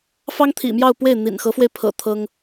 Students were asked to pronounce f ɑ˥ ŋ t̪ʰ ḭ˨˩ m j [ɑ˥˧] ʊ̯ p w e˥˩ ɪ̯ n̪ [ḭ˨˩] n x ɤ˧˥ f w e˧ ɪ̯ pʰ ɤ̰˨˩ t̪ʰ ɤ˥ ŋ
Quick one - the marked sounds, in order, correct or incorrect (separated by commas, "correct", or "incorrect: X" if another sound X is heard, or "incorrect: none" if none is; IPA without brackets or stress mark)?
correct, correct